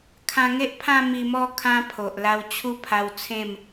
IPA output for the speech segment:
kʰã˧ŋe˦ʔpʰã˥˧ mi˧mɔ˥˧ kʰã˦pʰo˨ʔ la˧wt͡ɕʰu˦ pʰa˧w t͡sʰẽ˥˧m

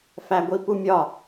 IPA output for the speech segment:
fæɡʷipumʲɒ

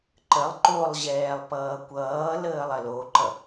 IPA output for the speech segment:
ǃəlˠ ǃolˠʑɛːlˠ pʌːkʷʌːləːlˠ ɐloǃʌ

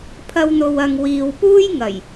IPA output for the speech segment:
pʰɐ˧wn̪o˨wɐ˨ŋ wiː˨wpuː˥jŋɐ˨˩j

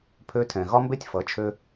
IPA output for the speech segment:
pʰø˧tʰɛ̃˨ ɣɒ˦mbe˦tʲfʌ˨˦ t͡ʃʰø˦

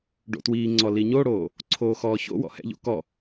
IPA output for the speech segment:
ɖo̰twiːŋ͡ǀɔ liɲoɽoː | ǀʰoːxɔːço̰wɔ̰ hɛ̰ʎo̰ kɔ

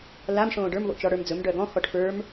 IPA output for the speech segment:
lam ʂõːɖə˞m βo̰t͡ʃɔɽə˞md͡zɵm ɖœɡɔ̃ xɔʈfə˞m

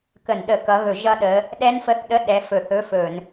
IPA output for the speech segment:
kə˧˩˧nɗə˧˩˧kʌ˨˦ ɣɵ˧˩˧ʒʌ˦˥ɗə˨˦ | ɗɛ˦˥nfə˧˥˧θɗə˧˥˧ ɗɛ˨˦ fɵ˧˩˧θɵ˧˥˧fɵ˧˩˧n

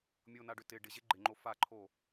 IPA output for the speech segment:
mʲonaɖʏ tɪ ɖɪʑe ɡ͡ǃɪŋ͡ǃo faǃʰo

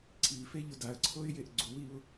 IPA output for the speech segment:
ǀʰifeʎʊ daə̯ǀʰoɪ̯jeʔ ɡ͡ǀuwiʊ̯

